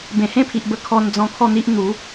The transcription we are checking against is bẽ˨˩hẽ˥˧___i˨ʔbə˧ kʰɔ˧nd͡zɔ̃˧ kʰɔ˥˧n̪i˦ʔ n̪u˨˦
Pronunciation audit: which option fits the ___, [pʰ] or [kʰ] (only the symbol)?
pʰ